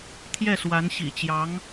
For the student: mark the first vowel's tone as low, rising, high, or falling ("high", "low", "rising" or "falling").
falling